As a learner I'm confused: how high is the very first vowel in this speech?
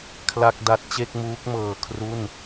low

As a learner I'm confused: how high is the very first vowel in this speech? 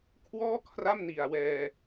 mid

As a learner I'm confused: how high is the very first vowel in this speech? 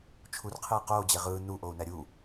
high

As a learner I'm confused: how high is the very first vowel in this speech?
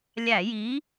low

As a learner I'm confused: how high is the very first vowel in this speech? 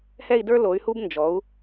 mid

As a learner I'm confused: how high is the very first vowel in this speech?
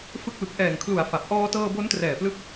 high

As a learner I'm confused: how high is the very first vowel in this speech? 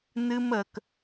high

